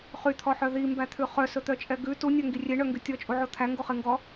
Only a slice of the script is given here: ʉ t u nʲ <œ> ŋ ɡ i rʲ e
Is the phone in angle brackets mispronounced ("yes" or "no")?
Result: no